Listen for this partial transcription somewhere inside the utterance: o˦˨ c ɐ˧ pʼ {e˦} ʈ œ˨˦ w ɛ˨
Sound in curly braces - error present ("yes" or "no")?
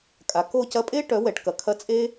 no